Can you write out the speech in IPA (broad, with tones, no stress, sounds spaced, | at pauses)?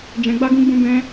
d͡ʒ ɛ̃˧ ɡ͡b a˦ ɡ ũ˧ ɡ͡b ũ˧ b ɛ̃˦